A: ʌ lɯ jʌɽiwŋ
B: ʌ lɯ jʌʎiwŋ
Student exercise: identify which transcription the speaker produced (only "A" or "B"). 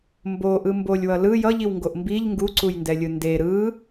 B